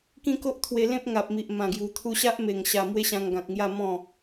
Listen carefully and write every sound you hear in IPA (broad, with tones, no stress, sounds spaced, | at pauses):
k ĩ˦ k o˦ ʔ t̪ʰ w e˧ l ẽ˦ p̚ ŋ a˨ p̚ m i˨ ʔ m ã˨˩ ɡ j u˨˩ t̪ʰ u˧ ɕ a˦ ʔ m e˨˩ ŋ ɕ a˨˩ m w e˦ ɕ ã˧ ŋ ɡ ã˨ k̚ ŋ j a˥˧ m ɔ̃˥˧